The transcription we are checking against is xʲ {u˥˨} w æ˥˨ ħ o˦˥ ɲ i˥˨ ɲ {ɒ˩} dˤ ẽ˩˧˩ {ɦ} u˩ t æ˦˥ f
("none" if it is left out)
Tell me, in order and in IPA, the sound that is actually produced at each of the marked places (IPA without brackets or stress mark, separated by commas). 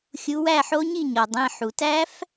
u˨˦, ɒ˩, ħ